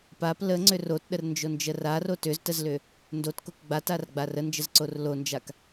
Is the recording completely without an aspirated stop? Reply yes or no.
yes